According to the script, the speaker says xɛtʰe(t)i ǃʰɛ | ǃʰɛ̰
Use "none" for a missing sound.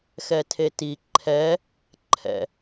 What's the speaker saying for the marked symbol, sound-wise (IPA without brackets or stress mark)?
t